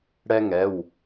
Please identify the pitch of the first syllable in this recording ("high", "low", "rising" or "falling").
high